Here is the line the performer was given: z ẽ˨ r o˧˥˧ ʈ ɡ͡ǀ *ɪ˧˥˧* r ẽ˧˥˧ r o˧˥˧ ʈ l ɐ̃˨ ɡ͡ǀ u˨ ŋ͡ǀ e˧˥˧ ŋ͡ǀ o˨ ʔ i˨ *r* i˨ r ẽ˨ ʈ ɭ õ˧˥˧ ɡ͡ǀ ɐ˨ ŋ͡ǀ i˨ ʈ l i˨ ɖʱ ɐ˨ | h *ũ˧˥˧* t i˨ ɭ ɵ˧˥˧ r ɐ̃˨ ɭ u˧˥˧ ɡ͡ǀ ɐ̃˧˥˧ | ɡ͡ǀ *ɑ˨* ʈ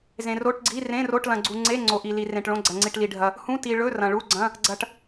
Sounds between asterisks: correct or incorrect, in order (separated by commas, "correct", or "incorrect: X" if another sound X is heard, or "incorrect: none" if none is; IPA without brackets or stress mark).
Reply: incorrect: i˧˥˧, incorrect: l, correct, incorrect: ɐ˨